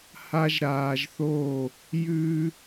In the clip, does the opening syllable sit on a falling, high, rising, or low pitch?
high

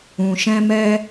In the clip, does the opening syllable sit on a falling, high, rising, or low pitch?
low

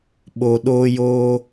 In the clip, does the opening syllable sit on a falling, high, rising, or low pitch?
low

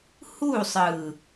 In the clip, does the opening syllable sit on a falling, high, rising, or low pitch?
falling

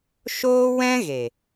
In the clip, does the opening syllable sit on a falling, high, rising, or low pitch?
high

